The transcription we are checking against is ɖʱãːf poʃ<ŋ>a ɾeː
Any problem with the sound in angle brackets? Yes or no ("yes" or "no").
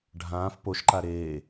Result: yes